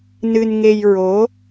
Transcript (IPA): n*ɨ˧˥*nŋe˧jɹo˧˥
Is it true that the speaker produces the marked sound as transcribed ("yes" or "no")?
no